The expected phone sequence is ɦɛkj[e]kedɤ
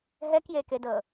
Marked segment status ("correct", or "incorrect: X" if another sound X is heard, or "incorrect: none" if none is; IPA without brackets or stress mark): correct